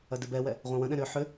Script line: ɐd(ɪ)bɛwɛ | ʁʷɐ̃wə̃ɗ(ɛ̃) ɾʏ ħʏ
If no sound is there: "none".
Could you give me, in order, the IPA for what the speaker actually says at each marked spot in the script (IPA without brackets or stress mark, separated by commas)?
ɪ, ɛ̃